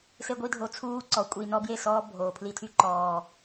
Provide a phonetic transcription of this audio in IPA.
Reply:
se˧ɡʷi˧dʱo˨˦ t͡sʰuː˦ǀɔ˨˦ kʷʼi˨ nɔ˦bje˦˨sɔː˦ bʱoː˨pʰli˧tʰy˦ ǃɔː˨

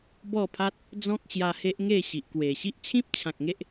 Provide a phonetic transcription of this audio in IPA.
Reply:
bɔ˥˧pʰa˦t̚ | d͡zɔ̃˦k̚ɕja˧he˦ʔ ŋe˥˧ɕi˨ʔkwe˨˩ ɕi˦ʔt͡ɕʰĩ˦p̚t͡ɕʰã˨k̚ ŋe˦ʔ

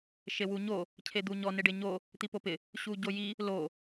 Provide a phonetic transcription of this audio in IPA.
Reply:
ʃewuɲo | cʰed̪uɲɔ neɖeɲo | t̪ipopɪ | ɕuɟoji | lo

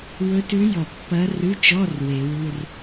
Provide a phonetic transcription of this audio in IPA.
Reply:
wɵ˧˥tʉ˧˥jɔ˨˩˦ pːɐ˧˥rʉ˧˥˧t͡ʃɔ˧˥˧r we˨˩˦wu˧˥˧r

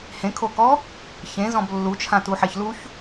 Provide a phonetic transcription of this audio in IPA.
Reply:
hẽkʰokɔ | çẽzɔ̃b lːut͡ʃʰãtuħeç luç

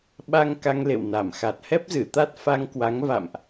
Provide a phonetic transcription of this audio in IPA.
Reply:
ɓa˧ŋ ka˧ŋlḛ˧˨w na˧˩mxa˨˩t̚ hɛ˦˥p̚zɨ˧˩t̪a˦˥t̚fa˧ŋ kwa˨˦ŋva̰˧˨mʔ

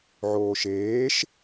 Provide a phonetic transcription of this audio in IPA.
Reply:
ʕoːʃeːʃ

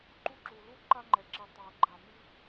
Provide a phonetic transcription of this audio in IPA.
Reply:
ǃu˦ ǁu˨ lu˦ ǃa˦ŋ͡ǃɛ˨ǁi˨ tˤa˨ə̯ɡ͡ǃa˨mi˦

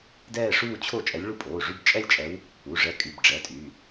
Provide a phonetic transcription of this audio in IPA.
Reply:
dɛː˥˧ʂuː˥˧ t͡ɕʰo˥˩ t͡ʃʼɛ˧˥lʲɭu˥˩pʼoː˩˧˩ ʐy˥˧bt͡ʃʼɛ˥˧lʲt͡ʃʼɛ˧˥w | u˩˧˩ʐɛ˧˥ kʼy˩˧˩b ɖ͡ʐɛ˩˧˩tʼy˩˧˩

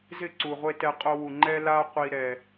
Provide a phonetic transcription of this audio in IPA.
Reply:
zɪ˦˨ǀu˨ʁʷe˧ tɛ˧qʼo˧wu˨ ŋ͡ǃɛ˦la˦ qʷi˧ɾɛ˨

